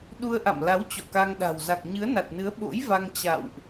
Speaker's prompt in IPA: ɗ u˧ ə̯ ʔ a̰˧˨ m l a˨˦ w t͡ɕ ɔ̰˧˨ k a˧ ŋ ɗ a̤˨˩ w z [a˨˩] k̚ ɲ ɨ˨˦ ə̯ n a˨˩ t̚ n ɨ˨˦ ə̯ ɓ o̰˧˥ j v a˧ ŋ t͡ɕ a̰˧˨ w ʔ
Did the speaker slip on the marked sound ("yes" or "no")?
no